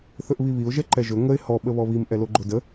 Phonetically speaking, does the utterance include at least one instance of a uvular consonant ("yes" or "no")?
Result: no